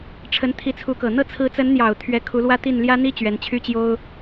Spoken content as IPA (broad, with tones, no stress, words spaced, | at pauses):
ʈ͡ʂʰə˧˥nt̪ʰi˧˥t͡sʰu˧˥kɤ˨˩ n̪ɤ˥˩t͡sʰɹ̩˧˥t͡sə˧˥nn̪jɑ˨˩ʊ̯ t̪ʰɥɛ˧˥kʰu˧˥lwä˥t̪i˥˩n ljä˥n̪i˥ t͡ɕɥɛ˧˥nt͡ɕʰy˥t͡ɕjo˥ʊ̯